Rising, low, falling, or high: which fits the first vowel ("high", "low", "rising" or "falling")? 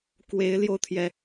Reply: rising